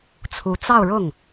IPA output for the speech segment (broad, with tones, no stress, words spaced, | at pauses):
t͡sʰu˧˥t͡sɑ˥˧ʊ̯ɻʊ˥˩ŋ